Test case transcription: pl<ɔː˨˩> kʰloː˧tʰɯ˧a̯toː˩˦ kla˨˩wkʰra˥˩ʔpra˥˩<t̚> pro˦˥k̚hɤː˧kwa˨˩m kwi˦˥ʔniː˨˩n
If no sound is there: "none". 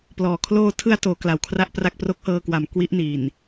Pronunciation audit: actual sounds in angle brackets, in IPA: ɔː˨˩, k̚

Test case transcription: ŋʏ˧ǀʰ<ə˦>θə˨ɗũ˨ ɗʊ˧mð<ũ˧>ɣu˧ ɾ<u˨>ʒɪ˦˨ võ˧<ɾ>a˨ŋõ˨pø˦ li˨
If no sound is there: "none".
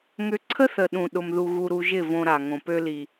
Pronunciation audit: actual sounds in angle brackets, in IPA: ə˦, u˧, u˧, ɾ

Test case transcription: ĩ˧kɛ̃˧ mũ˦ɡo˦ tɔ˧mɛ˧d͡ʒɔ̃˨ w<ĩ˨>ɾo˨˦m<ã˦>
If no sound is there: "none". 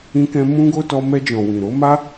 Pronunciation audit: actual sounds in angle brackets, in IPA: ĩ˨, a˦

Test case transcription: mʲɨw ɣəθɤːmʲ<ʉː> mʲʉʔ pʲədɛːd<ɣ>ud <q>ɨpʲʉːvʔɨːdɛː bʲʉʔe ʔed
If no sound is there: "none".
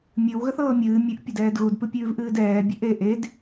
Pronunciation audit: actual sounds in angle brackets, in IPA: ɨː, ɣ, p

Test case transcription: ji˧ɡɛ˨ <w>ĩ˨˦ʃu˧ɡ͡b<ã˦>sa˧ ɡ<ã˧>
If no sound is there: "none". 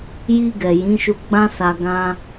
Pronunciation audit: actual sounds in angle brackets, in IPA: j, ã˦, ã˧

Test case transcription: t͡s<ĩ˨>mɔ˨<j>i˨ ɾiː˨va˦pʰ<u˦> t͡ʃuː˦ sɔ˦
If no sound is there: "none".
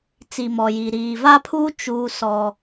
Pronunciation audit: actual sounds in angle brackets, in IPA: i˨, j, uː˦

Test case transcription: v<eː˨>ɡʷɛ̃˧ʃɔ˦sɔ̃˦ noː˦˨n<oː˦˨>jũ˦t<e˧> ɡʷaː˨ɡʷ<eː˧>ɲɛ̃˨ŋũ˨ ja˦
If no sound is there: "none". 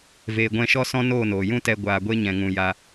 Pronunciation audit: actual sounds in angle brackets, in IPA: eː˨, oː˨, ɛ˧, e˧

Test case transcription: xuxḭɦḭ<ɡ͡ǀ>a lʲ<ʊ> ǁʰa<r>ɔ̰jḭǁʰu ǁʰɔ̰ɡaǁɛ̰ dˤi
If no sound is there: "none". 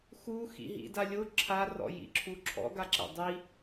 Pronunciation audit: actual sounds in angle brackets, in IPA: d, ʊ, r

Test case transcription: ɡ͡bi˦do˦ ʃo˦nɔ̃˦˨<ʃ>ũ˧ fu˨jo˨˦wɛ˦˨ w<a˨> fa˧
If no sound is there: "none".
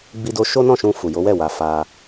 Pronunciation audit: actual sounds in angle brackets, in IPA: ʃ, a˨

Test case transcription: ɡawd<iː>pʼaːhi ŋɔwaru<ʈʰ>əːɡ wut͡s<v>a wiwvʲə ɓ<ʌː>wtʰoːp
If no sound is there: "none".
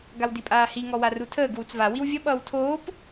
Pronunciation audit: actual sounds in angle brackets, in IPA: i, tʰ, v, ʌː

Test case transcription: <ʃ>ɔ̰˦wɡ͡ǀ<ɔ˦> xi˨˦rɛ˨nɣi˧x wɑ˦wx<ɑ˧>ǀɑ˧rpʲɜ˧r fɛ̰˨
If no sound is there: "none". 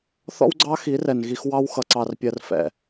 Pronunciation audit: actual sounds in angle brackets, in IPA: θ, ɑ˦, ʌ˧

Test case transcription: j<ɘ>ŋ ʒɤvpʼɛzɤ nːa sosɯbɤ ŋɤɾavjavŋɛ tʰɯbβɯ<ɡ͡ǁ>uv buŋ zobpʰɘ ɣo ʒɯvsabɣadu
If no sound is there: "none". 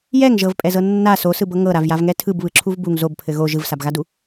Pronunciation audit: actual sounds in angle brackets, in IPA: ɛ, ǁʰ

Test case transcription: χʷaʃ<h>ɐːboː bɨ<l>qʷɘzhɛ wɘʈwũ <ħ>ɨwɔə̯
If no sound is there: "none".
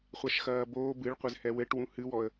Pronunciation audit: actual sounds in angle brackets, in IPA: x, ɭ, h

